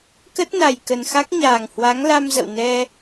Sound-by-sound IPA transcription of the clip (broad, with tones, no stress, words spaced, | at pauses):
kə˦˥t̚na˨˩j kə˨˩nxa˦˥k̚ɲaː˨˩ŋ hwa˨˦ŋla˧mzə̰˧˨w nɛ˧